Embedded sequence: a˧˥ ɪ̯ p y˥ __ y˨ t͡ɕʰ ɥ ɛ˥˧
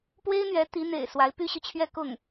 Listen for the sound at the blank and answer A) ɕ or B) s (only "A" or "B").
A